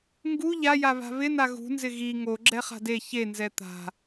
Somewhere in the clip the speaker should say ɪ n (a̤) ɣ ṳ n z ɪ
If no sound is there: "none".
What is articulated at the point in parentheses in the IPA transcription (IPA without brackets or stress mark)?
a